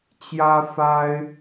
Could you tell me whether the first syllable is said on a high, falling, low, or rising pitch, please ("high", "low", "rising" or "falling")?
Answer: high